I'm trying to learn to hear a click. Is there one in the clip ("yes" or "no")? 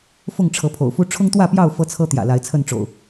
no